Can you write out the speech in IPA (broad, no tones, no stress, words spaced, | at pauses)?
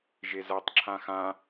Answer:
ʒezatˤ ǁʰãxã